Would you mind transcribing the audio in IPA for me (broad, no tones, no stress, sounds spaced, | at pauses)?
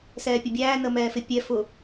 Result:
s ɛː pʲ ʊ bʲ æː n ə m ɛː f ɪ pʲ ɛ f ʊ